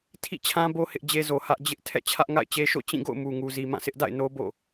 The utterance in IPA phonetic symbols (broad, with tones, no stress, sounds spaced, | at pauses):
tʰ ḭ˦˨ t͡ɕʰ ã˦ b o˦ h ɪ˦ ʔ d͡ʑ e˦ z o˨ h ä˦ ʔ d͡ʑ ɪ˦ ʔ tʰ ɛ̰˦˨ t͡ɕʰ ä˦ ʔ ŋ a̰˦˨ ɪ̯ t͡ɕ e˦ ʃ o̰˦˨ t͡ɕ ĩ˦˨ ɡ o̰˦˨ ʊ̯ m u˨ ŋ u˨ z i˨ m ã˦˨ sʰ ɪ˦ ʔ d a̰˦˨ ɪ̯ n o˦ b o̰˦˨